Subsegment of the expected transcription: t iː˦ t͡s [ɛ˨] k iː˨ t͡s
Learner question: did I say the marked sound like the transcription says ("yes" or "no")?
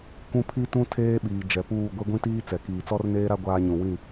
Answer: yes